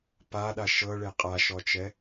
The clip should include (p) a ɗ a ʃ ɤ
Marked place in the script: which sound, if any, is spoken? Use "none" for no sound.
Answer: p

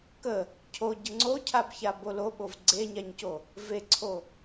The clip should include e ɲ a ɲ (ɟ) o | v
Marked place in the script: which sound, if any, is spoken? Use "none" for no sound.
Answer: c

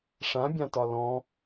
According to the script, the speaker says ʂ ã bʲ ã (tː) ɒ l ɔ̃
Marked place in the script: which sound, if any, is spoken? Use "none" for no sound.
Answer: t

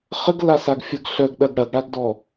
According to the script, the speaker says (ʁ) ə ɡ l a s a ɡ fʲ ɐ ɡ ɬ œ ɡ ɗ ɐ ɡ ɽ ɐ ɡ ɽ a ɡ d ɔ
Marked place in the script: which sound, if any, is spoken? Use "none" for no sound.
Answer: χ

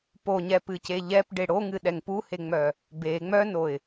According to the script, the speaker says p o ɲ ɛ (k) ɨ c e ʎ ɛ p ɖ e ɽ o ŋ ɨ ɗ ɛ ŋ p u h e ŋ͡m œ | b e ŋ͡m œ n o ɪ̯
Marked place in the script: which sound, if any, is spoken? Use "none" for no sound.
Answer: p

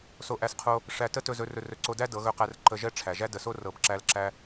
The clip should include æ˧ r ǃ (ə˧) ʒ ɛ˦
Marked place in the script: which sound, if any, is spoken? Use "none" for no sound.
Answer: ə˧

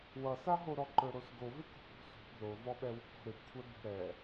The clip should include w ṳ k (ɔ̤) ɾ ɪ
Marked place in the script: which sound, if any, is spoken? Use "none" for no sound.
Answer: ɔ̤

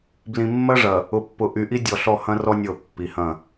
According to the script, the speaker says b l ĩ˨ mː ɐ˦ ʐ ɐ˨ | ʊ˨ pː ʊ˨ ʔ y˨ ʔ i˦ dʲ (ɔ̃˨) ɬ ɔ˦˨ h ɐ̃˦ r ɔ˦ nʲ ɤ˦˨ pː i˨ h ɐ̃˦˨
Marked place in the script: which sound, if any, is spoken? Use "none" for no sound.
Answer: ɔ˨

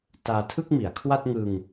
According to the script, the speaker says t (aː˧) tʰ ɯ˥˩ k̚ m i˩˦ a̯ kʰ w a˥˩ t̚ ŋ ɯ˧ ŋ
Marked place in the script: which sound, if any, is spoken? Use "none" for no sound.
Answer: aː˧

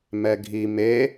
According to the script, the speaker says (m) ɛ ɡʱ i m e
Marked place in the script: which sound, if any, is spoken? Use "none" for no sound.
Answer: m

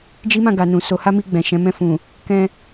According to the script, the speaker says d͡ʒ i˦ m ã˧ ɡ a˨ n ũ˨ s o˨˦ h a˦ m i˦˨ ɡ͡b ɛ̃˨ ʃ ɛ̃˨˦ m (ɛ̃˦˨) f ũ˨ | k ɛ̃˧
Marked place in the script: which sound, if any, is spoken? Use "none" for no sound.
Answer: ɛ̃˦˨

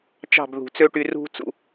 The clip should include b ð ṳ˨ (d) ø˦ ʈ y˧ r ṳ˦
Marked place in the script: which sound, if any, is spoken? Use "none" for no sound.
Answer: t͡s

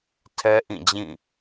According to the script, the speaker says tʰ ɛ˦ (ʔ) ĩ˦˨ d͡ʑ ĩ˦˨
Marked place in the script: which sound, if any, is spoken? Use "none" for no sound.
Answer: ʔ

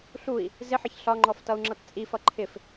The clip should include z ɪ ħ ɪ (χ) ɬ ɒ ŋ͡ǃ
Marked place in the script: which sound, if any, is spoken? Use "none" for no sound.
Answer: ç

